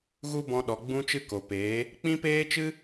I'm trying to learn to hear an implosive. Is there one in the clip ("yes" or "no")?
yes